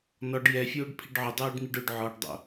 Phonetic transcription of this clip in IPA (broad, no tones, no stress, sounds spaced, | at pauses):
n ɔ ɖ j ɛ fʲ oː ɖ pʰ i ɖ ʕ ʊ dˤ uː ɖ n̪ i ɖ ʊ ɖ ʕ ɔ ɖ dˤ o̰